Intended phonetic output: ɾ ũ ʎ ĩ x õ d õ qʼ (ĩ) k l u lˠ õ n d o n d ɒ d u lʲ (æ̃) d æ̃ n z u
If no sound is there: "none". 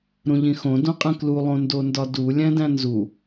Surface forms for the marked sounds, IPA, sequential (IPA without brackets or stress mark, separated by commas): ẽ, æ̃